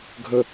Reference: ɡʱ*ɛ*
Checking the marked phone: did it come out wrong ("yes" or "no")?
yes